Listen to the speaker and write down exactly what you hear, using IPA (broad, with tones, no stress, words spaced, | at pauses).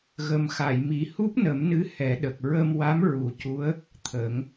ɣə˨˩mxa˨˩˨jmi˨˩ hu˦˥p̚nə˨˩˦mnɨ˧˥ hɛ˨˩˦ɗə˨˩k̚ ɹə˧m wa˧˥m ɹu˨˩˦cu˧˥ə̯ | t̪ʰəː˨˩˦ŋ